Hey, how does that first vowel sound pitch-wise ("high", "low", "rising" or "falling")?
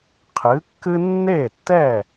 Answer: rising